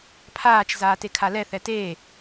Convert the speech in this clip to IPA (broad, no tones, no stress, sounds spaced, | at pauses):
pʰ aː t͡ʃ z aː t e kʰ a l ɛ θ ɛ t eː